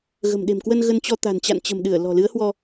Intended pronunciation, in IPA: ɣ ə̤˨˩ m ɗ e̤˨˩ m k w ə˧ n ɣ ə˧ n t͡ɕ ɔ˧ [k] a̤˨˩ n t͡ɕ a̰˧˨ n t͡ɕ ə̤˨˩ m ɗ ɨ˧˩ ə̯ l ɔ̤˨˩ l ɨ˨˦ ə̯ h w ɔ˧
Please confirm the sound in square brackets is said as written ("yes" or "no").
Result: no